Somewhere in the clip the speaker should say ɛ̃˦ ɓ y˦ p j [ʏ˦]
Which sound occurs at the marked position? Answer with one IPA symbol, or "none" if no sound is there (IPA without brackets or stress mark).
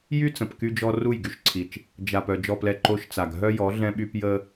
ə˦